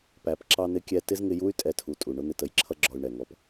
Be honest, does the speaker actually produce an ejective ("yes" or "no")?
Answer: yes